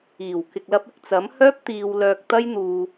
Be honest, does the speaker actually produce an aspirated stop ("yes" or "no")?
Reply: no